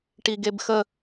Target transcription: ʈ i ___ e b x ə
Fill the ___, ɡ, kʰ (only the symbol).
ɡ